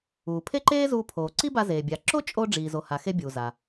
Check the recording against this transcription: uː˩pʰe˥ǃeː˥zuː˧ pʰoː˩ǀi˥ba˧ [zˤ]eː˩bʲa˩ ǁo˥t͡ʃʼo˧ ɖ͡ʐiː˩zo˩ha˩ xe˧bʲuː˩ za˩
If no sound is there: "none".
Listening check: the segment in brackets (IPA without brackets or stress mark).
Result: z